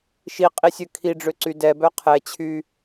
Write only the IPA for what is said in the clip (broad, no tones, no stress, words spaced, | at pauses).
ʃiqʼisʲø kʰiɖ͡ʐøǀy dɛbœ qʰɛt͡ɕʰy